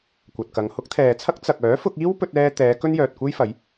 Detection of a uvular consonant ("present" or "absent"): absent